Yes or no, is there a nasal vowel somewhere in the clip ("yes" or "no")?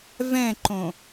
yes